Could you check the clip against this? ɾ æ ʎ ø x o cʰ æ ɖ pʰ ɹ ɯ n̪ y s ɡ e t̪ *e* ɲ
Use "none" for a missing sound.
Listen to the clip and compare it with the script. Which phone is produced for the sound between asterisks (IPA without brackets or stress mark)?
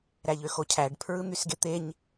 e